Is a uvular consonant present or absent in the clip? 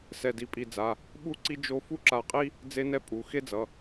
present